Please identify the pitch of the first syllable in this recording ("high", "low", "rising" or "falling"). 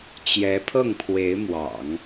rising